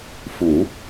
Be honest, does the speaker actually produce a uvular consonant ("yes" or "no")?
no